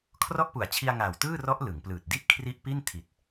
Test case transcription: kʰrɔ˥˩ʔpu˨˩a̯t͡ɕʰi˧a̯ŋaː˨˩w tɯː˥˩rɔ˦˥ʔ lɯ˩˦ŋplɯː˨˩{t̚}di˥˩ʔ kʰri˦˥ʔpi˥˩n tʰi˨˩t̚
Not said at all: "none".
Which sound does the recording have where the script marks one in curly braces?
t̚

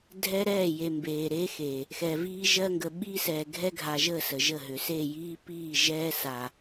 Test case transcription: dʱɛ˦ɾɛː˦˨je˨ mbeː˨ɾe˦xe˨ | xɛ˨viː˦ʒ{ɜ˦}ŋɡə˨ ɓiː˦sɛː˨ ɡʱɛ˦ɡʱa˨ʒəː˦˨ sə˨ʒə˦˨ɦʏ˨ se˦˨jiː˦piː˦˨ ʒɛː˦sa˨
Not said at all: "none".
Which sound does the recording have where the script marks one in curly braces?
ɜ˦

